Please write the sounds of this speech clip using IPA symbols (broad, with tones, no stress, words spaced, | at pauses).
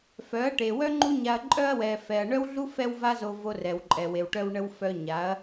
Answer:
fœ˨˦ɐ̯ʈe˨wœ˦ ŋ͡ǃu˦ɲa˧ɐ̯ǃʼœ˦ɐ̯ wɛ˧ fɛ˨ɐ̯ɳœ˦wɮu˦ fɛ˦wva˦zo˧ vo˧rɛ˨wǃʼɛ˨we˨w ʈœ˧wɳə˧w fœ˧ɲa˨˦ɐ̯